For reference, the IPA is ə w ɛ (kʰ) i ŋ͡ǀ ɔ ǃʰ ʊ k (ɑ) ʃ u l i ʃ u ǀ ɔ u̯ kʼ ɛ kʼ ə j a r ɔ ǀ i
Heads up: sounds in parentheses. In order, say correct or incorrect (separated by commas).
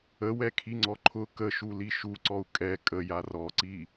correct, incorrect